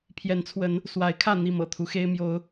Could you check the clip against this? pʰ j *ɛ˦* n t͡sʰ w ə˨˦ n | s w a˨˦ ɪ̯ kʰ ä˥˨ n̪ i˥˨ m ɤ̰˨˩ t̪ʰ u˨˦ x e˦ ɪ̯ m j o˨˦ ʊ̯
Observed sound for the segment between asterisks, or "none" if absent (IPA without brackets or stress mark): ɛ˨˦